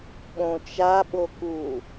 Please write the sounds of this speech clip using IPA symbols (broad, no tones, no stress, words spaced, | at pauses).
ɓõt͡ʃa ɓoku